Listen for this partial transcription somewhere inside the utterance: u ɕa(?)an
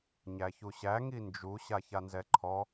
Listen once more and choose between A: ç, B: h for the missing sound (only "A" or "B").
A